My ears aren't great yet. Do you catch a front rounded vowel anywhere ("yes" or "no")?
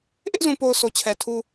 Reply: no